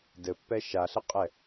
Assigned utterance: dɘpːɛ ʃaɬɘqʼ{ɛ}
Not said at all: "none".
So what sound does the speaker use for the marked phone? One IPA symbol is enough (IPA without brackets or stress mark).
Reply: ɛ